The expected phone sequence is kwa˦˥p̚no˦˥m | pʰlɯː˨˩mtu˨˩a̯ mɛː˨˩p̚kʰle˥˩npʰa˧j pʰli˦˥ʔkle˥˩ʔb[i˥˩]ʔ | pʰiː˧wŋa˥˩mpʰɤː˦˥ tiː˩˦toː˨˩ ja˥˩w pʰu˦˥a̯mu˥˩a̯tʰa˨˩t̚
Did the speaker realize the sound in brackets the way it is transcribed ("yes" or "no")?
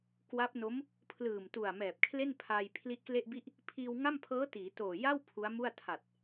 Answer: yes